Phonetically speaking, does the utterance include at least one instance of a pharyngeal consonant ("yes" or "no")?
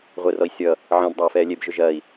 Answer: yes